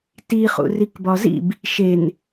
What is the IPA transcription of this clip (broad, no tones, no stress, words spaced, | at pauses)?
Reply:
tiχṵ rikbɒzḭb | ʃen